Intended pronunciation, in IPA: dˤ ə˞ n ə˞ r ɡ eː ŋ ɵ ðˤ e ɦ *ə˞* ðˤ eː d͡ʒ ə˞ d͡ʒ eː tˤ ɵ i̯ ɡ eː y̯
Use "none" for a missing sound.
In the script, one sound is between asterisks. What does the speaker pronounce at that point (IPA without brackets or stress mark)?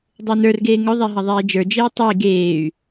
ɐ